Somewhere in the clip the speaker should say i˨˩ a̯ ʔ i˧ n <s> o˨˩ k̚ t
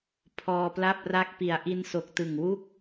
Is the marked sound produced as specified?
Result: yes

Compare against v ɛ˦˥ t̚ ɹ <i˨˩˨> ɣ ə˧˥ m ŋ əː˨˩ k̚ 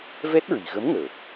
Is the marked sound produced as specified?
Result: yes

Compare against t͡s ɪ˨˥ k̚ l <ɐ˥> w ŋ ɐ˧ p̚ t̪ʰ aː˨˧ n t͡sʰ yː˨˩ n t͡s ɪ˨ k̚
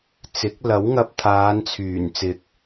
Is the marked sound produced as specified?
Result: no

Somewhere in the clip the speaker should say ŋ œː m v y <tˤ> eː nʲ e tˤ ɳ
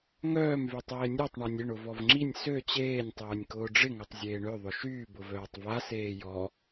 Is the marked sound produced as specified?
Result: yes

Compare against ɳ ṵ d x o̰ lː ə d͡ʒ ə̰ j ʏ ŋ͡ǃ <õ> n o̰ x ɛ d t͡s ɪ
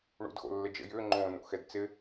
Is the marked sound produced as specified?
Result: yes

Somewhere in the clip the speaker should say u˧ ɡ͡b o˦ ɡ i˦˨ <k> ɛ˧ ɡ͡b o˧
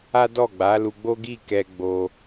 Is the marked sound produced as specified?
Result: yes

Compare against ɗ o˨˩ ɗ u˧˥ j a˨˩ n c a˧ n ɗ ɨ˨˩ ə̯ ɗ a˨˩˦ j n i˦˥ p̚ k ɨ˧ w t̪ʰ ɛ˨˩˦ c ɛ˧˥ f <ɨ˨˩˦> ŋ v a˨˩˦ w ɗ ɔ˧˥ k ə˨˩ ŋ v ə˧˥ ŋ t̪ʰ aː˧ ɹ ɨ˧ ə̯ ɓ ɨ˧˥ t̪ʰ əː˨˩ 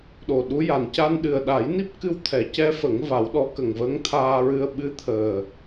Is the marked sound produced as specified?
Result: no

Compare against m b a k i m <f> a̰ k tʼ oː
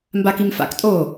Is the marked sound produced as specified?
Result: yes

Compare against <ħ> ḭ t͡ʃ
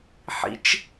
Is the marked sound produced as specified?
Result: yes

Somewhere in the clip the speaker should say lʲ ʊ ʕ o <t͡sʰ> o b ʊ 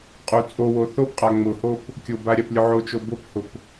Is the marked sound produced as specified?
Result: no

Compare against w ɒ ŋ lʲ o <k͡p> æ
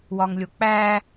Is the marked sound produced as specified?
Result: yes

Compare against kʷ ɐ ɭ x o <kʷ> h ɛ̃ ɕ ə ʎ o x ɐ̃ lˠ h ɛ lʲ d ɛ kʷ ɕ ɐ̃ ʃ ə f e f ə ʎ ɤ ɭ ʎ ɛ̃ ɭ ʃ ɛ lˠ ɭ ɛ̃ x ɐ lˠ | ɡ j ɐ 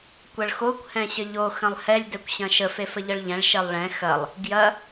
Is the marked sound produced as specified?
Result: yes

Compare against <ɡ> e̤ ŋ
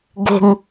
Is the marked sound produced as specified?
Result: yes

